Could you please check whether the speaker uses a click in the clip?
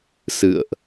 no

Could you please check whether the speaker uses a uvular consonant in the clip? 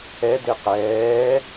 yes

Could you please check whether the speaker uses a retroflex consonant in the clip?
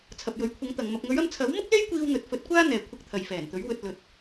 no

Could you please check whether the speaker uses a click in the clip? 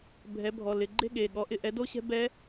yes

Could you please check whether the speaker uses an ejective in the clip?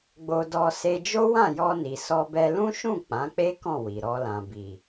no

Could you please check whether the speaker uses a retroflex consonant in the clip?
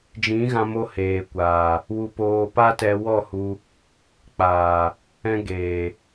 no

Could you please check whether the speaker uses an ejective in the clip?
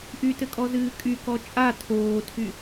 yes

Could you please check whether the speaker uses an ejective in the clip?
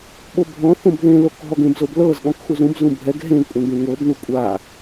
yes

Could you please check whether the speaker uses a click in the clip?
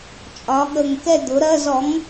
no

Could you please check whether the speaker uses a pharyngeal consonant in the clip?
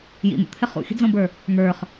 no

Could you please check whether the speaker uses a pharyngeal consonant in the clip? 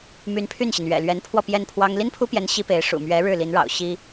no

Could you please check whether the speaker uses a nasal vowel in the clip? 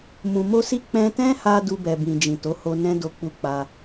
yes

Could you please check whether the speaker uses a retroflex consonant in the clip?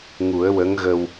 no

